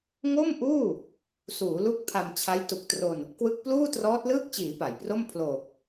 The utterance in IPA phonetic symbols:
ŋ o˥˩ m ʔ uː˥˩ | s uː˩˦ l u˦˥ k̚ pʰ a˧ m t͡ɕʰ a˦˥ j t u˨˩ k̚ t r o˧ n | k w ɯ˦˥ k̚ p l uː˥˩ t r ɔː˦˥ t̚ l ɯː˥˩ k̚ t͡ɕ iː˩˦ p a˩˦ j p r o˥˩ m pʰ l oː˨˩ k̚

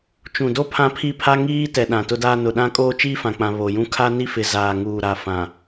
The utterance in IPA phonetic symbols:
t͡ʃ ũ˨ d o˦ pʰ ã˦ pʰ i˦ pʰ a˦ ŋ iː˦ t ɛ˨ ɗ ã˨ t ʊ˦ d aː˦ n ʊ˨ ɗ ã˦ kʼ oː˦ t͡ʃ iː˦ f ã˨ k͡p ã˨ β o˨ j ũ˦ kʰ a˦ n i˦ f ɪ˨ z aː˨ ŋ uː˨ ɾ a˨ f ã˨

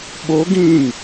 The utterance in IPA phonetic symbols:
ɓ o ɡ ĩ ŋ

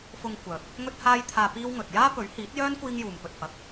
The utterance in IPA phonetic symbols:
f ʊ˧ ŋ kʷ œː˨ p̚ | ŋ ɵ˥ t̚ h aː˥ j t̪ʰ aː˧ p iː˥ w ŋ ɵ˨ t̚ j aː˥ p ɵ˨˥ ɥ h iː˨˥ t̚ j œː˥ n kʷ iː˥ ŋ j uː˨ m p ɵ˨ t̚ f ɐ˨˥ k̚

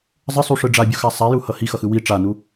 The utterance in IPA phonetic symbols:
zˤ ə sˤ u ʂ ɯ ɖ͡ʐ a bʲ u x a sˤ a j u h ʌ h i x ʌ x ɯ w i ʈ͡ʂ a n u

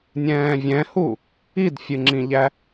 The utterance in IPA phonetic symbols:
nʲ ɛ̃ː vʲ ɛ̃ h u | i d fʲ ɨ ŋ͡ǁ ĩ ʎ æ

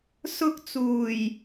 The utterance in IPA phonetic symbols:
s ʊ˥ k̚ t͡s uː˨˩ j

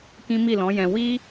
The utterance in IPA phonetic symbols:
k ĩ˦ m i˦˨ l ɔ̃˨˦ j ɛ̃˧ w i˦

